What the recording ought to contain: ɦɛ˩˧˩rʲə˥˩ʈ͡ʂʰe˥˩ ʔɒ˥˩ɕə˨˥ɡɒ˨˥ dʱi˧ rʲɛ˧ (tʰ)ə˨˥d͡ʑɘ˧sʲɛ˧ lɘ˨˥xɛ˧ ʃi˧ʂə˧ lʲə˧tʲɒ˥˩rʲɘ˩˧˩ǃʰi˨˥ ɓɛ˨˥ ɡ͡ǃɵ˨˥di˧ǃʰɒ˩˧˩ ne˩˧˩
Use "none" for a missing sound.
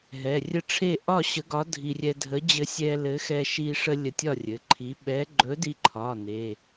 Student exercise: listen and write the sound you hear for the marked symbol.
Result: dʱ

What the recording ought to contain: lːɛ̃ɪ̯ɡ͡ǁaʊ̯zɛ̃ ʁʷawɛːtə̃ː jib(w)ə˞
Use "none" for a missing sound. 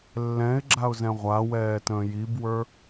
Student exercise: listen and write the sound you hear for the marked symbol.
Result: w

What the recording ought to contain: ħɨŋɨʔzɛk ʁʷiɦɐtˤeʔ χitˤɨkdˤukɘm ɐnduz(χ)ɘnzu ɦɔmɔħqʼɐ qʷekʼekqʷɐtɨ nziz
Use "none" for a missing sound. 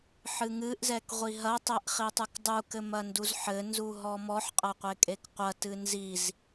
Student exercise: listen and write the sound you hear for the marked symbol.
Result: ħ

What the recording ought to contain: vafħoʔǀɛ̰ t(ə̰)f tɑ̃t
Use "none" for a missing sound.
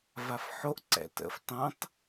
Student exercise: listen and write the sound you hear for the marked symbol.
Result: ə̰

